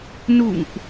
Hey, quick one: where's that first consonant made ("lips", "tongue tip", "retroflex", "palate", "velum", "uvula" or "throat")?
tongue tip